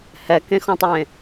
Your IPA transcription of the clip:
hɛkẽxɔ̃tˤwẽ

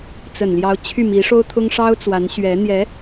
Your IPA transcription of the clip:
t͡sə˨˩nljɑ˧˥ʊ̯ t͡ɕʰy˥˩mi˧˥ʂo˥ʊ̯ t̪ʰʊ˥ŋʂɑ˥ʊ̯t͡swa˧˥n ɕɥɛ˧˥ n̪jɛ˧˥

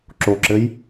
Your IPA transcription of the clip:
ǁoǁɘj

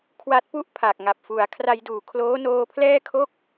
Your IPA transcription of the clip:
kʰwa˦˥t̚pu˥˩ʔpʰa˨˩k̚ ŋa˨˩p̚fu˩˦a̯ kʰra˧jduː˨˩ kʰloː˦˥noː˧pʰlɛː˥˩kʰo˥˩k̚

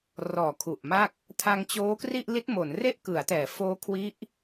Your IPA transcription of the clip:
rɔː˨˩kʰu˨˩ʔma˥˩k̚ | tʰa˧ŋt͡ɕoː˦˥kri˥˩ʔ li˦˥t̚mo˩˦nre˥˩ʔ kɯ˩˦a̯tɛː˩˦ foː˦˥kʰwi˦˥ʔ

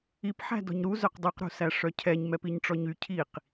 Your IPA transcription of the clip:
ipħæ̤ dɔ̤ɲɾu zœqdˤʉqɾṳsæ ʂœcʰɛɲmɛpiɲ ʈ͡ʂɔɲy cʰiq

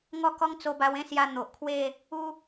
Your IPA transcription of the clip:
ŋɔ˥˧kɔ˦ŋ t͡so˦ba˦w ẽ˥˧sja˧ n̪o˨ʔkʰwe˥˧ | u˦

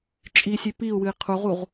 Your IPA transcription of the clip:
t͡ʃʼisʲʉ piu̯wɨi̯ qʰuʁuʁ

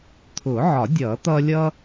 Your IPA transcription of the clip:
t̪ʰʊː˨˩˦ʕɒ˨˩˦ dʲʌː˨˩˦t̪ʌː˦ lʲʌ˦

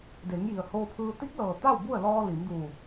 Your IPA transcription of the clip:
de˩˧ŋji˩ə̯ hoː˧pʰɯː˧ t̪i˧˥k̚lɤː˩ t̪a˥˨wbu˥˨ə̯ lɔː˧ li˩˧mduː˧˩

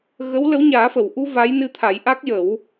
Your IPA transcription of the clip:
ɣə˧˥wlə˧˥wɲaː˨˩˦ fə˨˩˨wʔu˧ va˧˥j nɨ˧t̪ʰa˨˩˦jʔa˦˥k̚ jə˨˩˦w

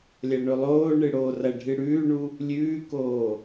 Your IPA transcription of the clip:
lʲɐɳɵlˠoːɳɨ ɽoːrɐɖʱɨ ɽʉːɳu | lʲʉːkoː

